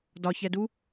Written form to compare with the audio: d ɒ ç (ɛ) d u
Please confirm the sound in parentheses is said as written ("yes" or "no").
yes